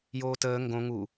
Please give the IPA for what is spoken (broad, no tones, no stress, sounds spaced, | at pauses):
j oː t əː ŋ ɡ õ ŋ u